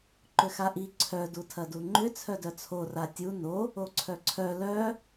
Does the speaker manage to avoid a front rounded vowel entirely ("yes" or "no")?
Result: no